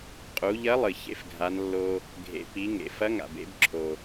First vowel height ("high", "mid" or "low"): high